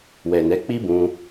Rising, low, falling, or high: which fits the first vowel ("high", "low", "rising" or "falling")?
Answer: low